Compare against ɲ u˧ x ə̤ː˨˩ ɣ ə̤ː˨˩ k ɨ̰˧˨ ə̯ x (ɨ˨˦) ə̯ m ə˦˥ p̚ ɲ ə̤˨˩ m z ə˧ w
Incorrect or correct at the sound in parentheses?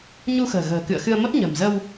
incorrect: ɨ˧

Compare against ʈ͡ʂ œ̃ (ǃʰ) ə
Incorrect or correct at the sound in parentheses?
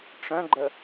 incorrect: ɡ͡ǃ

